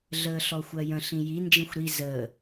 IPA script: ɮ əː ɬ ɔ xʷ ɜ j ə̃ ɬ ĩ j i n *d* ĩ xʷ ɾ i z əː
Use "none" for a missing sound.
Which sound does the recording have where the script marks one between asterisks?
d͡ʒ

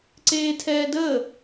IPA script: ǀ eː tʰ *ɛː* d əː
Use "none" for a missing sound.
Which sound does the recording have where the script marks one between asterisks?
ɛː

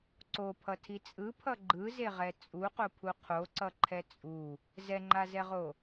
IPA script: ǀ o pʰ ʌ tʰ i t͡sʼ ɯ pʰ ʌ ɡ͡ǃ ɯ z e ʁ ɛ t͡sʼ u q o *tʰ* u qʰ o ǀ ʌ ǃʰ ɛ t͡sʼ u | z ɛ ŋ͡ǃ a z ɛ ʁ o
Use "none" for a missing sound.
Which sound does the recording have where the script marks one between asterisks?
pʰ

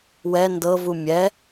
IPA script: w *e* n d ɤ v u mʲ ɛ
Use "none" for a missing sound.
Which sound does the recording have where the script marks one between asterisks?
ɛ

